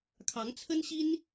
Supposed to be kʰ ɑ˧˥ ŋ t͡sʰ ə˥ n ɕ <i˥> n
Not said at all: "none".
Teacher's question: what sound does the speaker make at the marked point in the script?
i˥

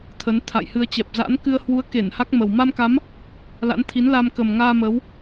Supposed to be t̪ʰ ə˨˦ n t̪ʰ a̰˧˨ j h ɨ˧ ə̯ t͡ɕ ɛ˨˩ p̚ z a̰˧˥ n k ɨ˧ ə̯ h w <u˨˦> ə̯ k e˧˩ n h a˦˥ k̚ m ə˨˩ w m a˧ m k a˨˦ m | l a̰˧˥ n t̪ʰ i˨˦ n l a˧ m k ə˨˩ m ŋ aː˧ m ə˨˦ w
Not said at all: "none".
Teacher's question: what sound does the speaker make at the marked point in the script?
u˨˦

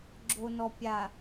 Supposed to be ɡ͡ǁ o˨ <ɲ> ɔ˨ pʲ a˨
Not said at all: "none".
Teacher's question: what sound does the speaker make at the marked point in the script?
n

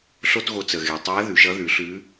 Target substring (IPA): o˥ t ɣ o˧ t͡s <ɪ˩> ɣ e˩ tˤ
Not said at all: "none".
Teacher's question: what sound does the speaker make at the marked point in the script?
ə˩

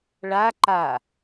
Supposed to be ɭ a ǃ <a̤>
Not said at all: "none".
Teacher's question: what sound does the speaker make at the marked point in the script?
a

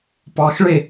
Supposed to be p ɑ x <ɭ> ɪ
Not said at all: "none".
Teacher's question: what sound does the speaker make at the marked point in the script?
ɭ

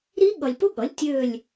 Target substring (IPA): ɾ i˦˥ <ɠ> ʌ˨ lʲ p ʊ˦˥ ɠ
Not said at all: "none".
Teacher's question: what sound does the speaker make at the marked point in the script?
ɠ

